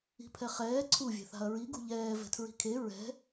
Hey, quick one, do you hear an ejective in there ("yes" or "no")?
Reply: no